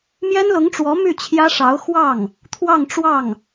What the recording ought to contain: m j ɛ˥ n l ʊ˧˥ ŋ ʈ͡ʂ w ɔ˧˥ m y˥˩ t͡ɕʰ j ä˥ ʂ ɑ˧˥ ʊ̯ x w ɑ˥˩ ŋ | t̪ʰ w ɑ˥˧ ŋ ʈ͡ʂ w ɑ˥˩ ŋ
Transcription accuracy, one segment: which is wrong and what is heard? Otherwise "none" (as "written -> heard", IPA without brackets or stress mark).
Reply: none